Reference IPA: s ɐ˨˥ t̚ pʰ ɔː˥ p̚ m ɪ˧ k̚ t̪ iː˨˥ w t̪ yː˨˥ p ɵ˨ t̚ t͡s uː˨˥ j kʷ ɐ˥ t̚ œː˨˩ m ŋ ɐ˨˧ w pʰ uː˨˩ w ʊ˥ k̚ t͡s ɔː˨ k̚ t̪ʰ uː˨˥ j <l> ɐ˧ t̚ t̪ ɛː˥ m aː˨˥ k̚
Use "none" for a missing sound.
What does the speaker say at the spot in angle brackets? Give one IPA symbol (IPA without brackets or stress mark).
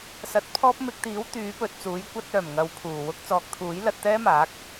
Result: l